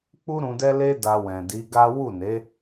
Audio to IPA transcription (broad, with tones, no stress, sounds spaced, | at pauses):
k͡p u˦ ɾ ũ˧ d ɛ˦ l e˦ d a˧ w ɛ̃˨ d i˨˦ ɡ a˦ w u˦˨ n e˨˦